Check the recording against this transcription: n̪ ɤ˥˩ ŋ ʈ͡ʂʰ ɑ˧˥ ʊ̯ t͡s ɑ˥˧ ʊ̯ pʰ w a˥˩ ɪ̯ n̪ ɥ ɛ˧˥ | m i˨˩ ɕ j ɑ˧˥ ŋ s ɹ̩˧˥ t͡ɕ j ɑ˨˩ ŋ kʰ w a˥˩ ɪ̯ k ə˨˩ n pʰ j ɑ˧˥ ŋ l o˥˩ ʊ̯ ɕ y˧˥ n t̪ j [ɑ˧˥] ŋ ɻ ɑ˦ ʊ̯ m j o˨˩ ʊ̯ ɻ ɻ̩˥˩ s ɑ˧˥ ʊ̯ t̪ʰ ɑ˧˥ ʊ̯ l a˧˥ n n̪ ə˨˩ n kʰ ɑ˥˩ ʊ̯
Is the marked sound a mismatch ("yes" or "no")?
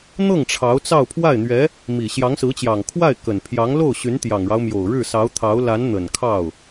yes